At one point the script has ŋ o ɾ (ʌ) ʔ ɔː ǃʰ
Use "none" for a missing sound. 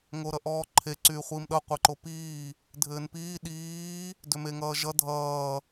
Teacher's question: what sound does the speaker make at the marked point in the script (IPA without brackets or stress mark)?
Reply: ʌ